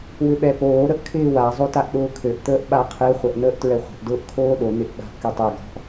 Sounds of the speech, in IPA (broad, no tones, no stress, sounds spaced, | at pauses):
w ʏ ɓ ɛ p oː ɾ ə ʔ kʰ ɪː w a zˤ o t a ʔ ɗ ʊː kʰ ø ʔ t̪ əː ʔ ɓ a qʰ e χʷ ɛ ʔ n̪ əː ʔ t ɹ ɛ χʷ ə̤ ʔ d ʊː ʔ kʰ oː ɗ o n̪ ɪ ʔ ɓ a̤ ʔ k y tˤ ø ɡ ɔ̤ ʔ